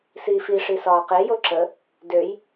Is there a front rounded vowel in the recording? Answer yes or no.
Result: yes